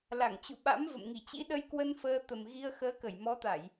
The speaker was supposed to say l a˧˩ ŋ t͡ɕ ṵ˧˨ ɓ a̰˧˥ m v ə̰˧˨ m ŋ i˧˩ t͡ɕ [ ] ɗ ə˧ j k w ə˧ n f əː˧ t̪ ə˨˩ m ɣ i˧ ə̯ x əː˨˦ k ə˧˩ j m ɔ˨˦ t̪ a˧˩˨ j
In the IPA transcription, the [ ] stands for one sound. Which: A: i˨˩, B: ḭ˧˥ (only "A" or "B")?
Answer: B